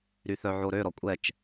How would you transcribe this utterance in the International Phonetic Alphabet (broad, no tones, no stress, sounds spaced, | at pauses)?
ɾ y θ œ ʕ o ɾ ø ɾ ɔ kʷʼ ɛ t͡ʃ